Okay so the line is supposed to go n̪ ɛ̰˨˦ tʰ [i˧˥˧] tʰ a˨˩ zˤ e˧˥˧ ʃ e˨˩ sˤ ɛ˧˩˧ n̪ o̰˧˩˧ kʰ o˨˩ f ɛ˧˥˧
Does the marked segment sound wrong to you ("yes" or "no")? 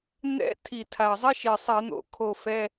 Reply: yes